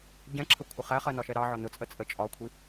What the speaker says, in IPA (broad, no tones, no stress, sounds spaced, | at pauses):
ɟ ɛ̃ ǁʰ ə kʷʰ ə χ æ χ ɜ n ɒ ʃ ɛ ɾ ɑ ʕ ɒ n ʊ t͡sʼ ə t͡sʼ ə t͡ʃʼ ɒ kʷʰ i